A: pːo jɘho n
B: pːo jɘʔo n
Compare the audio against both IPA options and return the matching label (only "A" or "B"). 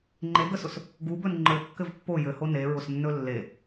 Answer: A